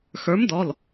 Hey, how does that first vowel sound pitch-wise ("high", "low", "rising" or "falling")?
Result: rising